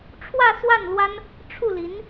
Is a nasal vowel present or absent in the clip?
absent